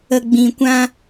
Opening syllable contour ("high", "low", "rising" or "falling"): low